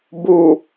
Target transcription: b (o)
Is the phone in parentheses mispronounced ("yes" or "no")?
yes